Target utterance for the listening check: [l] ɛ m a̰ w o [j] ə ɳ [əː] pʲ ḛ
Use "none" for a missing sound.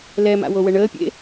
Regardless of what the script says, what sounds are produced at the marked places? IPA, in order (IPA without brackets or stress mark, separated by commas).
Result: l, w, əː